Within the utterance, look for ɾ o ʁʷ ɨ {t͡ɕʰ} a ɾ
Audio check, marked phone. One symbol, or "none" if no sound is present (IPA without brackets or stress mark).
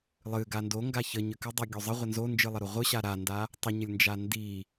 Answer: ɕ